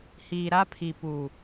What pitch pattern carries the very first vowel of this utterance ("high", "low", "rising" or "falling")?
low